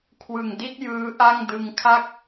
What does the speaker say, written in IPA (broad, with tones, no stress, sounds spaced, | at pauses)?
kʰ w ɯ˨˩ ŋ d i˥˩ t̚ j ɯː˦˥ ʔ a˥˩ ŋ d ɯ˧ ŋ kʰ a˥˩ k̚